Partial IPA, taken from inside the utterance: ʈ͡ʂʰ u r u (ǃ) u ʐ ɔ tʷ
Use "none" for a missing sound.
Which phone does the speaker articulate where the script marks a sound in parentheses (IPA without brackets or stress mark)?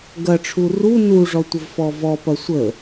n